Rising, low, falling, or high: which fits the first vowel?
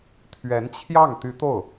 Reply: rising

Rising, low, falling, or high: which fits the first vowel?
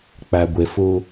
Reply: low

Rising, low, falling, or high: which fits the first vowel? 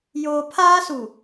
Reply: low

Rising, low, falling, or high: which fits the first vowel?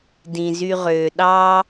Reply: low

